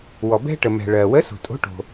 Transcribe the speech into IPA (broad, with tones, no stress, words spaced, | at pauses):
wɔ˨bɛ̤˥ʈə˨ mɛ̤˨ɭɜ˨ wə˧˥so̤˨tʼo̤˧˥ʈo̤˨